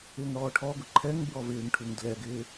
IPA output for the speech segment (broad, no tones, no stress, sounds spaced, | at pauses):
ɪː ŋ ɽ ɔː ʈʰ ɔ ɡ ʊ ǃʰ ɛ ŋ b ɹ ɔ v ɪː ŋ ʈʰ u ŋ d l ɛ ɡ ɪː